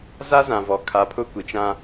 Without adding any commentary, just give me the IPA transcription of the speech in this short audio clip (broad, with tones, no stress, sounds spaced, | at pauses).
z a˦ z ã˨ v ɔ˨ kʰ a˨˦ pʰ ʊ˦ kʷ i˨ t͡ʃ ã˦